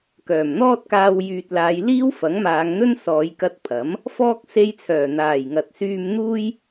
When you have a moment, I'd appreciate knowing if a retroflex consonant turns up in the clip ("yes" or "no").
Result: no